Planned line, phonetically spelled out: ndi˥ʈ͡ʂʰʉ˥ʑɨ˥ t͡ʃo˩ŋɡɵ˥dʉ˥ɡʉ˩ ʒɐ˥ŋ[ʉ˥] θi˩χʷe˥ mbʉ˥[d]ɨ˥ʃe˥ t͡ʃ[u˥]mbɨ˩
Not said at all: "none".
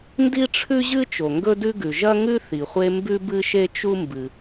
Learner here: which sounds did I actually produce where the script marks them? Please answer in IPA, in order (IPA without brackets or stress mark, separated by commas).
ʉ˥, b, u˥